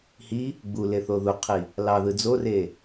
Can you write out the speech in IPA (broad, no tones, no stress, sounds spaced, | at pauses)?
h i | ɡ͡b u l e θ o ð u qʰ i | l ɑ ð ɯ d͡z o r e